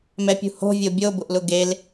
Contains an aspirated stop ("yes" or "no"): no